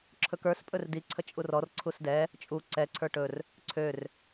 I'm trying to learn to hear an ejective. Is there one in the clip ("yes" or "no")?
yes